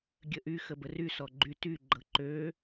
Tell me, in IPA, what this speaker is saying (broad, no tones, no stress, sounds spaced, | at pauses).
ɡʲ ə ʔ y x ə b ə r y s ɔ ɡ͡ǃ y t y ɡ͡ǃ ɤ ǃ ø